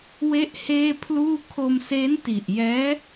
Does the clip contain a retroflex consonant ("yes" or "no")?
no